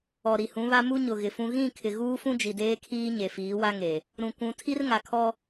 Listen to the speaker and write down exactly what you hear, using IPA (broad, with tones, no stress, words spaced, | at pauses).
ɔ˨ɾi˨hũ˨˦βa˦ mu˦ɲʊ˨ ɣɪ˨fũ˦ ɣĩ˦˨ kʰɪ˨ ɣuː˦fũ˦ d͡ʒi˨deː˦kʰiː˦ ɲe˨fiː˨˦wa˦ŋe˨ | ɾũ˨kʷũ˨˦ tʰi˦rŋa˨kʰɔ˦